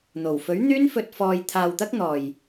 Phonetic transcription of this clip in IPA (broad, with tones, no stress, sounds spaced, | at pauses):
n̪ o˨˩ w f ɵ˨˥ ɥ n̪ yː˥ n f ɵ˧ t̚ f ɔː˧ j t̪ʰ aː˧ w t̪ ɐ˥ k̚ n̪ ɔː˨ j